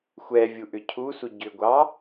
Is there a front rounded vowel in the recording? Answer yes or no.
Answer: yes